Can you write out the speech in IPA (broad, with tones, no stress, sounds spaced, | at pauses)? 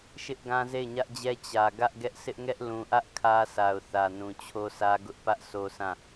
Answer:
ʃ ɪ˦ ʔ ɡ ã˦ z e˦˨ ɪ̯ ɲ ä˦ ʔ d͡ʑ ɛ˦ t͡ɕ ä˨ ɡ ä˦ ʔ ɡ ɛ˦ ʔ sʰ ɪ˦ ʔ ŋ ɛ˦ ʔ l ũ˨ ʔ ä˦ ʔ kʰ ä˦ sʰ a˨ ʊ̯ θ ä˨ n ũ˨ t͡ɕʰ o˦ s ä˦ ɡ ʊ˦ ʔ p ä˦ ʔ s o˦ s ã˦˨